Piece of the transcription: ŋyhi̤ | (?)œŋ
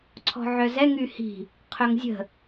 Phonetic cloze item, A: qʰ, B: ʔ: A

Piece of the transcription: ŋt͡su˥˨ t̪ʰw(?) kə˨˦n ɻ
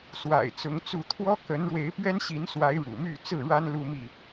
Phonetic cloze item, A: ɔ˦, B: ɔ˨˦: A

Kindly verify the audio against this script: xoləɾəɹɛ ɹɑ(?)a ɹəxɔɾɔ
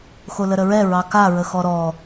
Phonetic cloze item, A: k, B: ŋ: A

